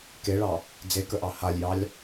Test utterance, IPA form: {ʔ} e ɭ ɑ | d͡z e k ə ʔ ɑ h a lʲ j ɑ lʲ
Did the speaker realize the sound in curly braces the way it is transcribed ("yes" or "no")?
no